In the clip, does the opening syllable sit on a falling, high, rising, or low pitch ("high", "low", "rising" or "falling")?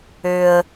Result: low